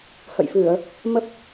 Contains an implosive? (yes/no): no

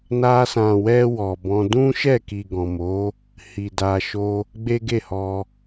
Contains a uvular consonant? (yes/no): no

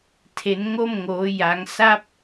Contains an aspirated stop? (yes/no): yes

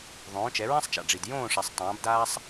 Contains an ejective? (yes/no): no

